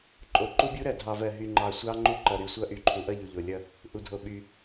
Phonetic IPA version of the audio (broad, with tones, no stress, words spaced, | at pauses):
ǃʼo˨ǃu˦bʲu˦ɾɜ˨ dʱɑ˨vɜ˨ ɦy˨ŋ͡ǃɑ˨ sʷɑ˦ŋ͡ǃu˦ǃʌ˨ ɾy˨sʷʌ˦ ʔy˨ǃʰu˨ʔʌ˦˨ ʎu˨ʎo˨lʲʌ˦˨ | ʔu˨dʱo˨ ɓy˨